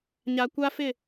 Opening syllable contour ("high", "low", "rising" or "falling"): low